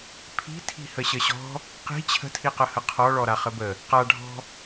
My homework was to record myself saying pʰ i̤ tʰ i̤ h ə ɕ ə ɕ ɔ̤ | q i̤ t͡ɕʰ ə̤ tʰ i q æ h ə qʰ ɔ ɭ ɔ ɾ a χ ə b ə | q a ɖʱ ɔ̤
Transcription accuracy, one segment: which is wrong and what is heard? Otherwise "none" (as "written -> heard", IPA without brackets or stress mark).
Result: æ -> ə